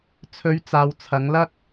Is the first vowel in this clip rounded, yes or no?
yes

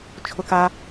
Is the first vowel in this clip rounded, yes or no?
yes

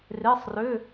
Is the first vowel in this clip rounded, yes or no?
no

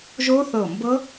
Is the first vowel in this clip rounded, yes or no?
yes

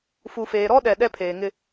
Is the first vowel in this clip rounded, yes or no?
yes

